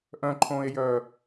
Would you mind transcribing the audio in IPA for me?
ʔœ̃ǃʰõːe̯jœː

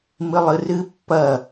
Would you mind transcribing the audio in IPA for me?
mɨlˠɨrɨ pːɐ

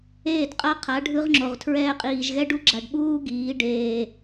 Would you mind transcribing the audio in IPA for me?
eː˦˨dqʼa˦qʰa˨˦ ɖʱɯ˦ʁŋ͡ǁo˨ʁtʰɹɛː˦ qʼiː˨ʒɣɛ˦ɖu˦ɡ͡ǁa˨ɖ ɓuː˦ɡiː˨˦ ɖeː˨

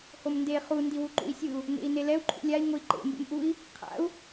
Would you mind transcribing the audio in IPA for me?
homnde χu ndiwuǃṵi̯sʲɯu̯ | nḛi̯nelɛu̯ ǃʰṵlʲai̯ ŋoi̯ǃḛ mbḛmʔui̯ | qʰa̰u̯

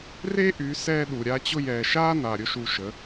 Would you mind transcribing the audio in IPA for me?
re˦ʔy˨˦ sɛ˧ ɗu˨ ɾʲa˧t͡ɕʊ˧jɛː˨ ʃaː˦ na˨ɾʲʊ˦ʃu˧ʃə˨˦

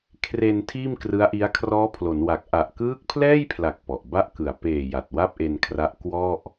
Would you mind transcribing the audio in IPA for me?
kʰre˧n tʰiː˥˩mkrɯ˦˥a̯ʔi˦˥a̯ kʰrɔː˦˥pʰlo˩˦nwa˨˩k̚ ʔa˨˩ʔkɯː˦˥k̚pʰlɛː˥˩jpʰla˨˩k̚ pɔ˨˩ʔ ba˥˩ʔkɯ˨˩a̯ peː˨˩ ja˨˩t̚wa˥˩p̚ʔe˧nkʰra˦˥ʔ kwɔ˥˩ʔ

